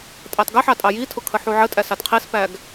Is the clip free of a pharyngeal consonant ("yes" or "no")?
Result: no